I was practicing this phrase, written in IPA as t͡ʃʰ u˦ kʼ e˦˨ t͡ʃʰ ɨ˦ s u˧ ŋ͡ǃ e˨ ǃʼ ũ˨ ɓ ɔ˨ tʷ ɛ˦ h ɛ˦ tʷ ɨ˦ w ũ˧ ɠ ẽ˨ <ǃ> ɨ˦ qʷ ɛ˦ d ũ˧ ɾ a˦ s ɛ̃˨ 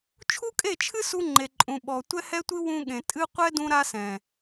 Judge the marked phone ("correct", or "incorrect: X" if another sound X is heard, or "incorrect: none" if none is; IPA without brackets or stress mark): incorrect: tʼ